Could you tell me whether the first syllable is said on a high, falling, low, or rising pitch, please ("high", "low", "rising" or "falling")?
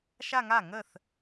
falling